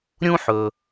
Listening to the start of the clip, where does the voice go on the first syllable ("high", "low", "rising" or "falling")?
high